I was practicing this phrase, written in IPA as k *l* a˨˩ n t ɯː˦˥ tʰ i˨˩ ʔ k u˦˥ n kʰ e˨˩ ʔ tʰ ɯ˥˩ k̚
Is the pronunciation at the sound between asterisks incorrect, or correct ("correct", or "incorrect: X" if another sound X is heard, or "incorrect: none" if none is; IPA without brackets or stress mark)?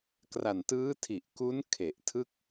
incorrect: r